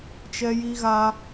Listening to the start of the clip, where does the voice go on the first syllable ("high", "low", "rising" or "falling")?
high